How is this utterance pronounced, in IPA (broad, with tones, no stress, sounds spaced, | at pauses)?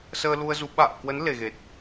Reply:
s əː˧ l u˧ ə̯ z u˨˦ ɓ a̰ː˧˨ k w ə˨˦ n l e˨˩ ɣ e˨˩ t̚